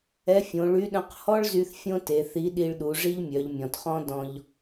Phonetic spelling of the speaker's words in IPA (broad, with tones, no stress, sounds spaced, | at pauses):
ɛ˧˥ fʲ õ˩˧ ɭ y˧˥ ɗ œ̃˧ q h ɔ˥ ɭ z y˧ θ fʲ õ˥ t e˩˧ θ i˧˥ ɗ i˧ ɭ ɗ u˩˧ ʐ i˥ ʎ mʲ œ˩˧ ʎ mʲ ɔ̃˩ t χ ɔ̃˥ d ɔ̃˧ ʎ